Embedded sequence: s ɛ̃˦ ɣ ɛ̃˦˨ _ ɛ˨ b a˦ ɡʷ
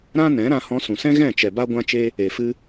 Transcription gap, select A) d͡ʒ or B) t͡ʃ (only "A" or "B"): B